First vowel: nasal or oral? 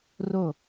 oral